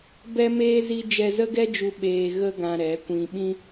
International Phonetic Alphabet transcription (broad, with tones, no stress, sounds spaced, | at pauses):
b ɛ˦ m eː˦ z i˦ d͡ʒ ɛ˧ z ə˦ ɡ ɛ˦ d͡ʒ u˧ ɓ eː˧ ɣ ə˦ ɡ ã˧ ɾ ɛ˨˦ kʷ ĩ˧ ɓ ĩ˦